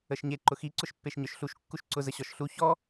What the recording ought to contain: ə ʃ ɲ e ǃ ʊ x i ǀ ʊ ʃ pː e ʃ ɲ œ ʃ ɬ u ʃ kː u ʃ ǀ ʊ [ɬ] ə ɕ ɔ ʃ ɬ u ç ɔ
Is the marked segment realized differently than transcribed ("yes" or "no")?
yes